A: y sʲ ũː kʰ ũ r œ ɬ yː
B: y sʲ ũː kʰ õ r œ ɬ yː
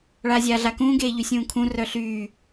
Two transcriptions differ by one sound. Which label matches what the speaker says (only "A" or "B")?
A